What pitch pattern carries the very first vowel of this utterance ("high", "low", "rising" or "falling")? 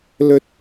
high